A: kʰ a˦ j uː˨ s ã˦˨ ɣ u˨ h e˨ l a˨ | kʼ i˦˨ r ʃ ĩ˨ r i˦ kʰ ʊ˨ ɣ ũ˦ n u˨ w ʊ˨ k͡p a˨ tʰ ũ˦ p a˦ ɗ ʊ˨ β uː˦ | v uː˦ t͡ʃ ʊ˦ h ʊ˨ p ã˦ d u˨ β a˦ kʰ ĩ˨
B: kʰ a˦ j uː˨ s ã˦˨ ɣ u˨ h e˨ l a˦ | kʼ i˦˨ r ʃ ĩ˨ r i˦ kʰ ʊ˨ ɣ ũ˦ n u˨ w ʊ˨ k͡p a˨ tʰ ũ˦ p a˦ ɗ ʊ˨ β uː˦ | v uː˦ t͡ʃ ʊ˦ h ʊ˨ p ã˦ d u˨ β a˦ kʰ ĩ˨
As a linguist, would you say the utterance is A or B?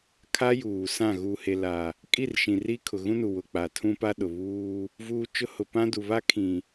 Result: A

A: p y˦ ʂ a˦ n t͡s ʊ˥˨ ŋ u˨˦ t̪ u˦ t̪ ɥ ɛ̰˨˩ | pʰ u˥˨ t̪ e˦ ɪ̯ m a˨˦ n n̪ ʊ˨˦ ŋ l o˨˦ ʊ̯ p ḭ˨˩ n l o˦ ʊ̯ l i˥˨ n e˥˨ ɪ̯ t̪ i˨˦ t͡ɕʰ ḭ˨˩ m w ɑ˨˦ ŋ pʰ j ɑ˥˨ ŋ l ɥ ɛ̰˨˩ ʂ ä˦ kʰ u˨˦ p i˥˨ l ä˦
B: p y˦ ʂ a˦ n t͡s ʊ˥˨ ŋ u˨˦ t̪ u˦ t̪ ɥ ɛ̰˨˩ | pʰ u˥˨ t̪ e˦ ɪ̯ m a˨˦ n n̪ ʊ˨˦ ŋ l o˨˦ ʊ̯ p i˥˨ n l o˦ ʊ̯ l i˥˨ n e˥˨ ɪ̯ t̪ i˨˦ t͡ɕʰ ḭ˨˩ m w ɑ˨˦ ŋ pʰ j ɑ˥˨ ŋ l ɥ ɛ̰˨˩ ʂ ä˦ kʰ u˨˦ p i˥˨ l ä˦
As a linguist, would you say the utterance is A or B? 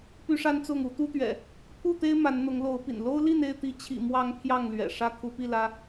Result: A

